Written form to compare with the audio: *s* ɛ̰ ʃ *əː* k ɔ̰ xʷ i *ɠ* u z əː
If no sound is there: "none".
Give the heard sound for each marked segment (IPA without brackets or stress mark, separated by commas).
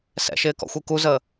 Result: s, ɪː, k